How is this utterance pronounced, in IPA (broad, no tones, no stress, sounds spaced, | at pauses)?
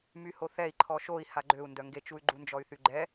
m y h o θ ɛ i̯ ǃʰ ɔ ʃ o i̯ h a ɡ͡ǃ ø u̯ n d œ ŋ ɡ e t͡ʃ u y̯ ɡ͡ǃ u n d͡ʒ ɔ y̯ θ y ɡ͡ǃ ɛ